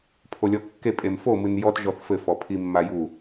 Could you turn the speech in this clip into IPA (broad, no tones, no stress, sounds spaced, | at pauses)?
pʰ o lʲ ɔ kː e pʼ e m f o m ɨ n j ɔ t ʒ ɔ θ f ɘ f ɔ pʰ i mː a j u